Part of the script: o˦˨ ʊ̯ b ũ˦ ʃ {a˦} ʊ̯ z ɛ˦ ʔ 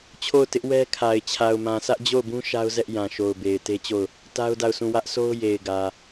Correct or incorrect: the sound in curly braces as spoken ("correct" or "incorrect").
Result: correct